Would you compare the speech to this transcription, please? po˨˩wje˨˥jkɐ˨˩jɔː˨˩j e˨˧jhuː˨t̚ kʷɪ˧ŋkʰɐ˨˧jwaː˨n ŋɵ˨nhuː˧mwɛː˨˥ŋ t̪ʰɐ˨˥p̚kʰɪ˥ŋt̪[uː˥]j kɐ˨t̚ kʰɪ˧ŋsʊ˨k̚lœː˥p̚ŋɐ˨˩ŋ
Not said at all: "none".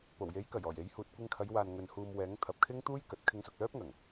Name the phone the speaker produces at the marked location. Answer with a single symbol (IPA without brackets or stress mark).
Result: uː˥